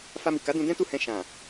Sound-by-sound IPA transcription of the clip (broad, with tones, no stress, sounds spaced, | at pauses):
f a˧ m i˨ k a˨˦ d ũ˧ d ɛ̃˦ t u˦˨ h ɛ̃˧ ʃ ã˨